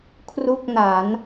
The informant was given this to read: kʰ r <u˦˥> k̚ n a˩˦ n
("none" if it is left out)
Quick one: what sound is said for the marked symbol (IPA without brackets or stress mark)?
u˥˩